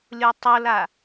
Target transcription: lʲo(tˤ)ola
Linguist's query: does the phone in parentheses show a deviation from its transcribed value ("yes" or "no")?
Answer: no